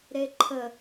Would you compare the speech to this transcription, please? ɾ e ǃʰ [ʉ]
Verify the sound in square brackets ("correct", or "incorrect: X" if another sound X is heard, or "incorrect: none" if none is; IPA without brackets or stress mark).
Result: incorrect: ə